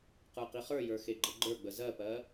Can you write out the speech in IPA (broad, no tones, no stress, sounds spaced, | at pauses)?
q ə˞ q i χ ə˞ j ə˞ x e ɡ͡ǃ ə ɡ͡ǃ ə˞ ɡ͡b ə z ɜ p ɜ